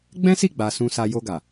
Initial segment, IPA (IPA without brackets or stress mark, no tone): ɡ͡b